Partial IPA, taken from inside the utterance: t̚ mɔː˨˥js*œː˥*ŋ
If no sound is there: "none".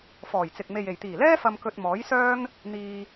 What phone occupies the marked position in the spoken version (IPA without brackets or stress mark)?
œː˥